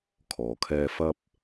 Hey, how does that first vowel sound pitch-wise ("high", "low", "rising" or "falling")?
low